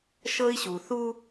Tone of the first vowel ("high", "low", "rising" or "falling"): high